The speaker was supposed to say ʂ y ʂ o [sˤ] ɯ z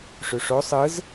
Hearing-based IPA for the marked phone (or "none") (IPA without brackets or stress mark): sˤ